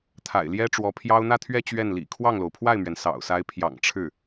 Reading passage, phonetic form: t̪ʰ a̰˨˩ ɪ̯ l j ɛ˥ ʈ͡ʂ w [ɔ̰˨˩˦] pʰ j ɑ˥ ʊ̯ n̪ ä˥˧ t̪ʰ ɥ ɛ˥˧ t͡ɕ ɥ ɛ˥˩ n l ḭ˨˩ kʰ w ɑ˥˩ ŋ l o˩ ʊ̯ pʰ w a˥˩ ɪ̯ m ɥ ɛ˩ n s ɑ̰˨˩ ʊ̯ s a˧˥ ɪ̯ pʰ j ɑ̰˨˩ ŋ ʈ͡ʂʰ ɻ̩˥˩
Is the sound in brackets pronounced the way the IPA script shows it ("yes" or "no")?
no